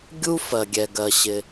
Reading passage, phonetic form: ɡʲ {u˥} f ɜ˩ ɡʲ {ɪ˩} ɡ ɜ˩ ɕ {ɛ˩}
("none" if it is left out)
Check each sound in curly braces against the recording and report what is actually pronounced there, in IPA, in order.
u˥, ɛ˩, ɪ˩

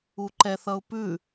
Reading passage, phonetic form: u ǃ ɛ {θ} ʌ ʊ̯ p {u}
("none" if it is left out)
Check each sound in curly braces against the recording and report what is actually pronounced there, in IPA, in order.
θ, ʉ

